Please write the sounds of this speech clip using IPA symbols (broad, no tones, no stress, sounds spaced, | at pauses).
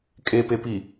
kʼ e p e p i